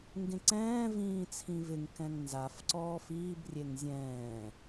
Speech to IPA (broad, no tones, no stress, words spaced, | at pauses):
ŋɡẽǀɛ̃ː vĩːt͡sʰĩvɪŋ kɛ̃ŋnzaf ǀɔːfiːb rʲeŋzʲɛ̃ː